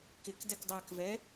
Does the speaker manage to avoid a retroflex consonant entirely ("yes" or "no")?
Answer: yes